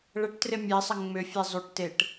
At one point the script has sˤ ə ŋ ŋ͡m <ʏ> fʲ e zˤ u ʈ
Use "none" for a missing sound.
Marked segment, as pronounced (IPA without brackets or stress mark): ʏ